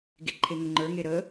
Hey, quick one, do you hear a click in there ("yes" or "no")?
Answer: yes